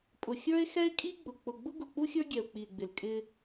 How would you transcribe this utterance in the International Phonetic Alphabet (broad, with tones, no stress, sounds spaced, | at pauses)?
pʼ ʊ˨ xʲ ə˞˦ e̯ x ɛ˦ e̯ kʼ i˦ ɡ͡b ʊ˨ k͡p ʊ˨ ɡ͡b ʊ˦ ɡ ʊ˨ k͡p u˦ xʲ ə˞˦ ɡʲ ɛ˨ o̯ k͡p i˨ e̯ ɡ͡b ɪ˨ l kʼ ɪ˦